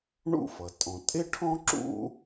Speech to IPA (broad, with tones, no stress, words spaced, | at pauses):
ɳṵ˥fʌ˩ tʼɔ̃˩ tʼɪ˥ʈʰɔ̃˥ ǁṵ˥